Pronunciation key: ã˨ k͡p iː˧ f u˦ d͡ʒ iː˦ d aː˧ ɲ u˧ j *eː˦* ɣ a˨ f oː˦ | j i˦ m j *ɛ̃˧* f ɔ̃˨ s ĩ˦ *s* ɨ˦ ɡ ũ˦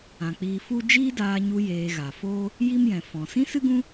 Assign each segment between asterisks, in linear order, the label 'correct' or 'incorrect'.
incorrect, incorrect, correct

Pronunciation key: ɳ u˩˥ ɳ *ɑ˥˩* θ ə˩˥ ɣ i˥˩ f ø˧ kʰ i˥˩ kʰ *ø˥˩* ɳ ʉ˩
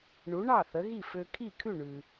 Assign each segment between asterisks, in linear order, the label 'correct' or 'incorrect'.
correct, incorrect

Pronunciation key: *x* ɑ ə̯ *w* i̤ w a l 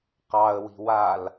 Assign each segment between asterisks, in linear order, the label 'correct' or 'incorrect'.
incorrect, correct

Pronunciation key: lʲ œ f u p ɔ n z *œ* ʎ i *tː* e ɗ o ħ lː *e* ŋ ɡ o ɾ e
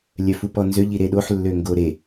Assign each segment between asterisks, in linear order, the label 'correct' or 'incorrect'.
incorrect, incorrect, incorrect

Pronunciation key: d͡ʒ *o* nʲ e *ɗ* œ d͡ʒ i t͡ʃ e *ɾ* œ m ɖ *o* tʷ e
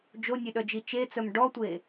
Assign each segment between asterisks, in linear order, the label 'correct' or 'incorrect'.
correct, correct, incorrect, incorrect

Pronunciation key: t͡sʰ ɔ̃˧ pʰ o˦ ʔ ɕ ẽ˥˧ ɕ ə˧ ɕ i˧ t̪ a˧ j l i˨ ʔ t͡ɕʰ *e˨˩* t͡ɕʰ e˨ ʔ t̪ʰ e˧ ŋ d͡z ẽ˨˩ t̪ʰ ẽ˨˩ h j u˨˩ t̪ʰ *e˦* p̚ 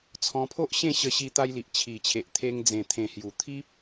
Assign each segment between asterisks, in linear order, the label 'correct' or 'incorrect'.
incorrect, incorrect

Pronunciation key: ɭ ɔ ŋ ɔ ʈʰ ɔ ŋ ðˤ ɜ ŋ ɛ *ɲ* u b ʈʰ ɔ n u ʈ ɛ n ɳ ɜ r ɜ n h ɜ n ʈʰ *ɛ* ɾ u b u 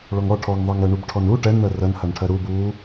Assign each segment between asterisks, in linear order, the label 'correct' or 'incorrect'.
incorrect, incorrect

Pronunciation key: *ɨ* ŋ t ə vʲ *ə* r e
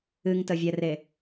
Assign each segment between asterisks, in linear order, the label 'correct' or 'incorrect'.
correct, incorrect

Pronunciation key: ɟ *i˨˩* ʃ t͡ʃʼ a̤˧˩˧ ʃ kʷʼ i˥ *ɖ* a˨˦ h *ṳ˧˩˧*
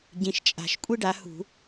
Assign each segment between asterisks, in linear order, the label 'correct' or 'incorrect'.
incorrect, correct, correct

